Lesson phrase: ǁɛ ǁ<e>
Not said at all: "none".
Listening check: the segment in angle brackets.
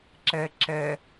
ɛ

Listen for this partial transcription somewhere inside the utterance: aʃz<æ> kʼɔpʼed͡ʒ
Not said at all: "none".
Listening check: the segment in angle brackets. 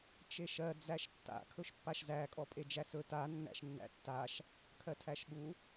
æ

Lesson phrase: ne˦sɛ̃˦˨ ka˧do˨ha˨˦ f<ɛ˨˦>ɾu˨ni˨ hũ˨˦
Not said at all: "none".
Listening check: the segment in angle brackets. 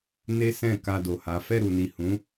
ɛ˦˨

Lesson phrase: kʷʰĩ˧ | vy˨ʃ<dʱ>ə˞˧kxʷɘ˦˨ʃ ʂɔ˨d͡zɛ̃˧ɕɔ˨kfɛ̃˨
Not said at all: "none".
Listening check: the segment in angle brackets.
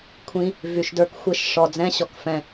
d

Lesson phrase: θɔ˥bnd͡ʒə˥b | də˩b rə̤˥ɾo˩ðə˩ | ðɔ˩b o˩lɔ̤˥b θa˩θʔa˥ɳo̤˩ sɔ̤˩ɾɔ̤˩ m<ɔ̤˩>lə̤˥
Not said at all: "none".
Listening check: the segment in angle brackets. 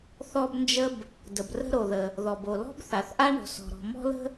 ɔ̤˥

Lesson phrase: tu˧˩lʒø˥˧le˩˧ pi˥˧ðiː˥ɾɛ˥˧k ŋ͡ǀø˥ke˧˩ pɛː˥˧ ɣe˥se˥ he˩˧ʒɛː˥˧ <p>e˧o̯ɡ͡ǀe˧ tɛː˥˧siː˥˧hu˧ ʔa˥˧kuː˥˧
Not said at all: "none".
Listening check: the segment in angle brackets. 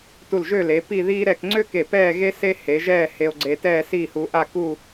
h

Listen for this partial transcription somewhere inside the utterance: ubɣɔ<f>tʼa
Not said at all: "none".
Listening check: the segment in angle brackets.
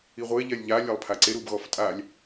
f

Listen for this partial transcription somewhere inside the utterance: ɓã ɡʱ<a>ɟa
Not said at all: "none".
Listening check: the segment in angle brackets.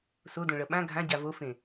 ã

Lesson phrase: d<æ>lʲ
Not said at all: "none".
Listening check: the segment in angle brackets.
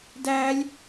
æ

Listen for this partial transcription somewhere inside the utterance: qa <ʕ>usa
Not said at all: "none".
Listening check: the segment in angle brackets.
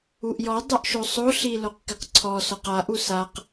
ʔ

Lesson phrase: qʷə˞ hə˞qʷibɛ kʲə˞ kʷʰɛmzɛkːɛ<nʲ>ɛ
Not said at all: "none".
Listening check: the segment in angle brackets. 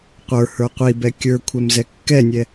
nʲ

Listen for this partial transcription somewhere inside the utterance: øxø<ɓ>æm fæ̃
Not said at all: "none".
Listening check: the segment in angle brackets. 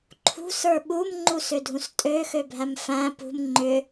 bʱ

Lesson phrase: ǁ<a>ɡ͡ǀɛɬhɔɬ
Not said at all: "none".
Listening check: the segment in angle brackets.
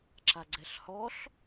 a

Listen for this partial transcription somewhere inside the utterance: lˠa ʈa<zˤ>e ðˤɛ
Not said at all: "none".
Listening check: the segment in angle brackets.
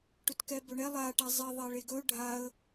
zˤ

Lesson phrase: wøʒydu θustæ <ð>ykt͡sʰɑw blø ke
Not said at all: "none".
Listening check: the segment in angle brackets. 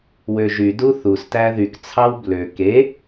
ð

